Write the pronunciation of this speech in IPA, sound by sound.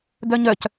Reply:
d œ ɲ œ c

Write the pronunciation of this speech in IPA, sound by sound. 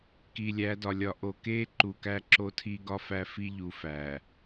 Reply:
k i˨ lʲ æ˨˦ d ɒ˨ lʲ ɒ˨ ʔ o˨ k e˦ ǃ u˨ k æ˦ ǁ o˦ tʰ i˦ ɡ ɒ˦ f æ˦ f i˦ ʎ u˨ f æ˨

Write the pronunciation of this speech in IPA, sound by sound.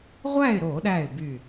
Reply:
ʁʷ æ˥˨ ɪ̯ ɾ o˧˩˧ ɗ æ˧˩ ɪ̯ b y˧˩

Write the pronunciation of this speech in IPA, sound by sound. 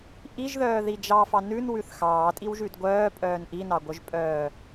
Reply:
ʔ i ʒ ð œː ð i d͡ʒ ɑ f ɑ n ʉ n w ʉ θ x ɑː tʼ i w ʒ ʉ d ɡʷ œː pʼ œː n ʔ i n ɑ ɡʷ œ ʒ pʼ œː

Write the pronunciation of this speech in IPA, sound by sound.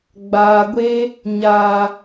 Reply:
ɡ͡b aː˨ ɡʷ e˦ | ɲ aː˨

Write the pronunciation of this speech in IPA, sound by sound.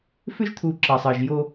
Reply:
f ʏ˦ ʒ t̪ʰ u˨ ǁ ɑ˨ sˤ ɤ˨ ʒ j o˦

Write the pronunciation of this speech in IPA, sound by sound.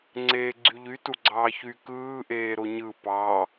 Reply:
ŋ͡ǀ eː ɡ͡ǀ y ʎ y t u ɡ͡ǀ ɑː ç y k ɯː ʔ eː ɾ o ɲ ɯ p ɑ

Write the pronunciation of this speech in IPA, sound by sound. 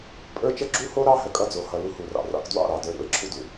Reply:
pʼ ə˞˦ t͡ʃ ə˦ ɡ͡ǁ u˦ h o˦ ɾ ɑ˦ h ə˨ kʼ ʌ˦ d͡z o˨ h ʌ˨ l u˦ h u˨ r ɑ̰˨ r ɑ̰˦ k d w ɑ̰˦˨ ɾ ɑ˨ d ə˞˨ ɾ ṵ˨ e̯ ǁʰ u˦ d u˨

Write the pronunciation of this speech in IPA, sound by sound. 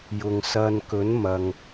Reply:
j ʊ˨ ŋ s ɐ˧ n k ɵ˨˥ n m ɐ˨ ŋ

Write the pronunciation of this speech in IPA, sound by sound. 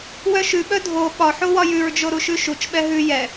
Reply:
w œ ʃ ʉ ɓ œ dʱ o ɓ ɒ ħ o w ɒ j ʉ ɹ d͡ʒ o ɾ u ʃ ʉ ʃ u t͡ʃ ɓ ɛ ɦ ʉ j ɛ

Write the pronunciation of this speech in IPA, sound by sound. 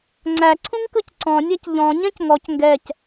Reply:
ŋ͡ǀ æ ǀʰ ũ ŋ k ɯ c ǀ ɔ̃ nʲ æ c ʎ ɔ̃ ɲ ɛ̃ c ŋ ɔ c ŋ ɡ ɛ c

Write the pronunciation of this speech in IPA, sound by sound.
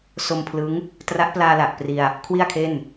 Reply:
s o˧ m pʰ l ɯ˦˥ ŋ | t r a˦˥ ʔ p l aː˧ l a˨˩ ʔ p r i˧ a̯ | kʰ w i˥˩ a̯ kʰ e˥˩ n

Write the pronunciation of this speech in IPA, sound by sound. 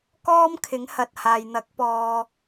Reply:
k ɔː˥ m kʰ ɪ˨˥ ŋ h ɐ˨ t̚ h aː˨ j n̪ ɐ˨˥ k̚ p ɔː˨

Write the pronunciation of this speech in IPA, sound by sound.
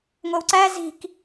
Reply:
ŋʷ e w ǀ æ z i̤ k

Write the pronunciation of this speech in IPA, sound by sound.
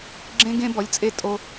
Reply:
ɡ͡ǁ ẽ˥ ɡ ẽ˥ b ɔ˧˥ lʲ t͡sʼ e˥˩ tʼ o˥

